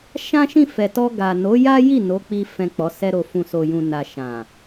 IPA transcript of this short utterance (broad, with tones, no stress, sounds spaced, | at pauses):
ʃ ã˦ ʃ ĩ˦˨ f ɛ˨ t ɔ˧ ɡ a˨ n o˨˦ j a˦ j i˦˨ n o˨˦ k͡p i˧ f ɛ̃˨ k͡p ɔ˨˦ s ɛ˦ ɾ o˧ f ũ˨ s o˨ j ũ˨ n a˨ ʃ ã˨